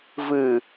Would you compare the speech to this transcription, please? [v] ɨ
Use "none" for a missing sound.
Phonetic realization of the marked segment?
v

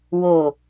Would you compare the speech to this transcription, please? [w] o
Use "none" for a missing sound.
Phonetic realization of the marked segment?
w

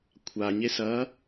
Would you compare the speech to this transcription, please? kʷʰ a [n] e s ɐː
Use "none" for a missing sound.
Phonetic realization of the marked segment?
ɲ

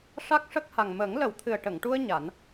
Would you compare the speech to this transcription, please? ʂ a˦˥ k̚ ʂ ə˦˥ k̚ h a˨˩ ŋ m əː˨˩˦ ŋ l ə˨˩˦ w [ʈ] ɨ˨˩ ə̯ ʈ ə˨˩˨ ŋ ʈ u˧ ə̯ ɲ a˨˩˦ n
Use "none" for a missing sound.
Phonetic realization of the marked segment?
t̪ʰ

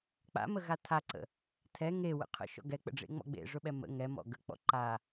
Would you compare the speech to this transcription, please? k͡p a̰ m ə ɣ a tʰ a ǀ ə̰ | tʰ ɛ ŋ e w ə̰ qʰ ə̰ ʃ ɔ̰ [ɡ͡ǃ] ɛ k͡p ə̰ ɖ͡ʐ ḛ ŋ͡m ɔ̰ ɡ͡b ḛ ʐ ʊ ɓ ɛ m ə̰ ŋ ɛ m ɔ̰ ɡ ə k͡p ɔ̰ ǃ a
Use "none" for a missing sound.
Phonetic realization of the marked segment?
ɡ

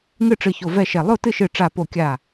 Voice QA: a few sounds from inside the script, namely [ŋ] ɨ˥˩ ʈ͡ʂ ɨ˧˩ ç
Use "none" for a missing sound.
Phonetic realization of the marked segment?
ŋ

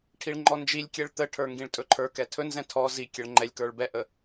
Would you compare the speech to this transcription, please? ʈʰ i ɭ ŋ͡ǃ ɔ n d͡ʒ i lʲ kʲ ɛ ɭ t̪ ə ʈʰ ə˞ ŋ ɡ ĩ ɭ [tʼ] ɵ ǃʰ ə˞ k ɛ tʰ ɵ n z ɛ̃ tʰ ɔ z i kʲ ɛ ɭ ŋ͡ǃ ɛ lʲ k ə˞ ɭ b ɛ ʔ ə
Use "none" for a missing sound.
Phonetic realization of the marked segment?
tʼ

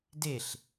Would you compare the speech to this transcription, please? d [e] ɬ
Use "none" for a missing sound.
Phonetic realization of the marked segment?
e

